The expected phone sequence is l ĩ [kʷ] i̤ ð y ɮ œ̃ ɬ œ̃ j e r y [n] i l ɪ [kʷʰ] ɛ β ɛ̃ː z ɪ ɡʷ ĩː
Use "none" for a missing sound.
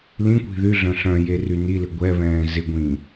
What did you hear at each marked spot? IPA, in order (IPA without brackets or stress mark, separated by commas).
kʷ, n, ɡʷ